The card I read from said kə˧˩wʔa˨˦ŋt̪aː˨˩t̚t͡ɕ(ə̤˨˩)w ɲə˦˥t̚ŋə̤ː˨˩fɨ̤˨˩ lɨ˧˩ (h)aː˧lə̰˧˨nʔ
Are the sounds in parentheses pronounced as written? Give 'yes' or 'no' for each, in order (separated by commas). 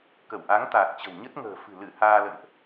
yes, yes